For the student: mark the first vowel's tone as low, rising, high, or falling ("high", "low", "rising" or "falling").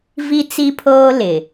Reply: high